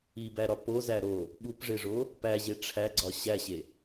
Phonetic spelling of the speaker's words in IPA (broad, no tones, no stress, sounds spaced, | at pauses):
i b æ ɾ ɒ p o z æ ɾ o | ɓ u p ʐ e ʐ o | p æ ʑ e ʈ͡ʂʰ æ ɡ͡ǀ ɒ ɕ æ ɕ e